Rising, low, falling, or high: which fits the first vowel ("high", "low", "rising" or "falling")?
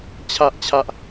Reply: high